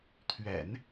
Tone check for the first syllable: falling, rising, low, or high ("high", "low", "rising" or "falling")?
low